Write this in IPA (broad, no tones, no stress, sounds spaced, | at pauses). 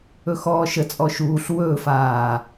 ɵ x ɔː ʃ ə t͡sʼ ɔ ʃ uː ɬ w ɵː f aː